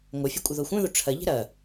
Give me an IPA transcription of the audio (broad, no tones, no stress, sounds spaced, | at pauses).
ŋʷ œ fʲ ɛ kʷʼ ɪ ð o xʷ œ̃ ð o ʈ͡ʂʰ ɐ ʎ ɛ̤ ɾ ɐ